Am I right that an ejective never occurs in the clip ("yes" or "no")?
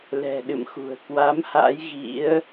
yes